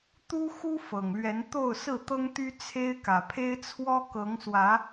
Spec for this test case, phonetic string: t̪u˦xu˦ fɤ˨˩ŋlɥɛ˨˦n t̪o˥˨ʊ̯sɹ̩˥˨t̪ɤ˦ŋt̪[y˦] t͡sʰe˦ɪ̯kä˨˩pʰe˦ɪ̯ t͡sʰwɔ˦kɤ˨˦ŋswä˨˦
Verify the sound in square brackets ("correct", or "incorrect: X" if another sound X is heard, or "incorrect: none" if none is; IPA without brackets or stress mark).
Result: correct